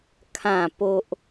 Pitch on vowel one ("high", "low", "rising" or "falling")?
falling